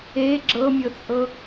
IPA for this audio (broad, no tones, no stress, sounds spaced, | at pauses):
e ɡ͡ǁ ɤ mʲ ɤ t͡sʼ ɤ